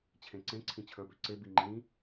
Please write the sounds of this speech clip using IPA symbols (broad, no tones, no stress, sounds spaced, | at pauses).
t͡ɕʰ ẽ ǀ ẽ ǀʰ ĩ t͡ɕʰ ə˞ b ø ǀ e b i ŋ͡ǃ ĩ